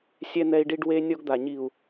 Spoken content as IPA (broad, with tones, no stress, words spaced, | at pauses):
sʲɛ˦n̪ɛ˦i̯ɖi˦ɖ we˦ nʲɔ˦ɡd̪a˨ ɲi˨u̯